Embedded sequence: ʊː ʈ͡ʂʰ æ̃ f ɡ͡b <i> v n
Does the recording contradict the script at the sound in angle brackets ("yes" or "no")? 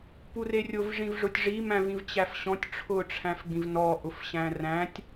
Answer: yes